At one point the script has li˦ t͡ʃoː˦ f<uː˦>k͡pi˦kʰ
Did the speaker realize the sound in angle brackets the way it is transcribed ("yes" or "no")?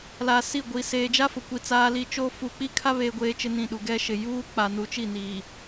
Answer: no